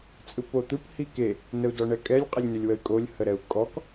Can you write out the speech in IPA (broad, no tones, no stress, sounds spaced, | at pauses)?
t͡sʼ ɯ p o t̪ ɯ p h i k e | n ə u̯ d ɔ ɳ ɛ kʼ ɛ lʲ qʼ ə lʲ n ʏ lʲ w ə y̯ kʼ o lʲ h ə ɾ ɛ u̯ kʼ ɔ k